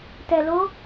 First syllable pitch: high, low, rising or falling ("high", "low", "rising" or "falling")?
low